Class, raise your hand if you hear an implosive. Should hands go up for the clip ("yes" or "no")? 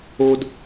no